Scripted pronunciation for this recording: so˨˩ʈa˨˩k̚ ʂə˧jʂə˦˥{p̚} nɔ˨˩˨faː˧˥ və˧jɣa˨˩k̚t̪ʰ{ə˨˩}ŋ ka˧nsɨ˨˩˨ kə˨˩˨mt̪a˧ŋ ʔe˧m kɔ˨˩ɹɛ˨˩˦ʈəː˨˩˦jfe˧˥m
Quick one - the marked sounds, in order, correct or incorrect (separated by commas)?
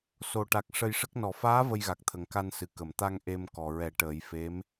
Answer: incorrect, correct